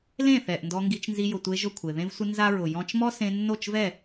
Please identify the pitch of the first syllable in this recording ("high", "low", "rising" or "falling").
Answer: falling